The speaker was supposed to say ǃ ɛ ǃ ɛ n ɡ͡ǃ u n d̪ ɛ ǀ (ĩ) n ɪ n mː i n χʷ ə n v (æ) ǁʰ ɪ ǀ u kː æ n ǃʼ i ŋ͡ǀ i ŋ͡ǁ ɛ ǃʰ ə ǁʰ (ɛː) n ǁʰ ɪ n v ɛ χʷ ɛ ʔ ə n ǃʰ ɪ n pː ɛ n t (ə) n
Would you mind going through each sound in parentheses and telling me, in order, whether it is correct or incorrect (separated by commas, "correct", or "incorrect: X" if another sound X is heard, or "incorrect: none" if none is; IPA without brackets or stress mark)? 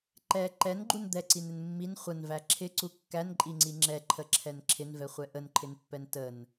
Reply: incorrect: i, correct, incorrect: ɛ, correct